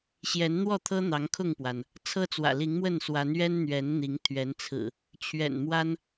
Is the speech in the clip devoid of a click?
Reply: yes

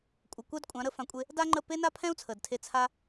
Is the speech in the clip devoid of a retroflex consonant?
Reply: yes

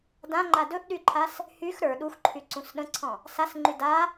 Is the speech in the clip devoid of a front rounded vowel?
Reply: no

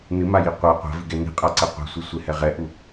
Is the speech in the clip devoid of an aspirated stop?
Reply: yes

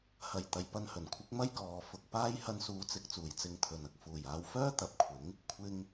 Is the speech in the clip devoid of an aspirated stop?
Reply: no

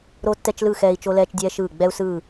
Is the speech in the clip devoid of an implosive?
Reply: yes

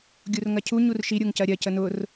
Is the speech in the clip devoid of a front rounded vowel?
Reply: yes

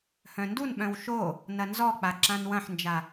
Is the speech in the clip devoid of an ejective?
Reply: yes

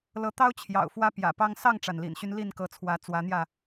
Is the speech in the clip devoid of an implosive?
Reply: yes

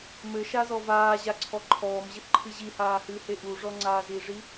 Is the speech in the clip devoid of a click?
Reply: no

